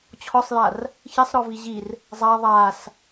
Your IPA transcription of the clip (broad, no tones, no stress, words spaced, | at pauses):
t͡ɕʰɔsˤjar | çisˤɾɔvi ʑir | zˤa ðˤas